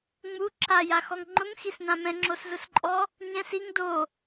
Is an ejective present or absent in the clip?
present